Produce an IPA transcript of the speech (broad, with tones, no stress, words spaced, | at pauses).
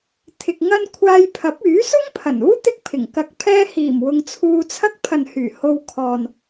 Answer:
t̪ʰɪ˧k̚ŋɐ˥n kʷʰaː˧jpʰɐ˨˥p̚ yː˨˥sʊ˥ŋpʰɐ˨˩nuː˥ t̪ɪ˥k̚pʰɪ˨˩ŋkɐ˧k̚ pʰɛː˧hiː˨˩m wʊ˧ŋt͡sʰuː˧t͡sʰɐ˥k̚ pʰɐ˨nhyː˨˩ ho˧w kʰɔː˨n